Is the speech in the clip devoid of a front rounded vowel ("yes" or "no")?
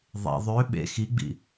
no